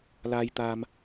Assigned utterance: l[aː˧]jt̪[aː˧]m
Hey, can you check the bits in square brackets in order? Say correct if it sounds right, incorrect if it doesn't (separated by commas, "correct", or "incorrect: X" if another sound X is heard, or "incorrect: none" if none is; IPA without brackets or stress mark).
correct, correct